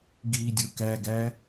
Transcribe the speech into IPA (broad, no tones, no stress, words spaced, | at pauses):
ɡiːdʲokæɡæ